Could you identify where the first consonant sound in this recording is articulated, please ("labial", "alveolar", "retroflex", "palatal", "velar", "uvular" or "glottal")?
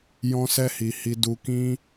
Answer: palatal